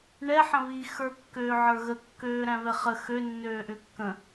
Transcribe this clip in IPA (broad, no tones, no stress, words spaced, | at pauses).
ɳɛ ħə̃βi xə˞kːøːʕə˞ɣə kːøːɾæ̃vɛχə xø nːøːʔʏkːə̃